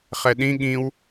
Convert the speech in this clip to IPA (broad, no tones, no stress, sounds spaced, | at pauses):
χ ɛ ɗ ĩ ɠ ĩ w